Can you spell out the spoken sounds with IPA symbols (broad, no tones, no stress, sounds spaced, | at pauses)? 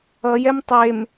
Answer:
ʌ j ɛ m tˤ e m